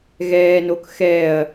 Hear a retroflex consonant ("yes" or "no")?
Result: no